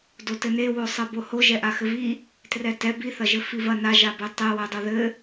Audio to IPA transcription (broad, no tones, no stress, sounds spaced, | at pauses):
d o t ɘ n e w o sˤ ɛ b o h o ʒ ɛ ʔ a x ɘ v i | t r ɛ t ɛ b i θ ɐ ʒ ɘ f i v ɐ n a ʒ a b e tˤ e w ɛ dˤ o ð ɘ